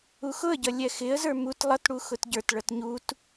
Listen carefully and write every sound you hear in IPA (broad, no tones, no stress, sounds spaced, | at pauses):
u x ʊ ə̯ ɟ ʌ lʲ ɛ x ɪ ə̯ z ə˞ m u t lˠ ʌ t ɽ u x ʊ t ɟ ə˞ t ɭ ʌ t ɲ u t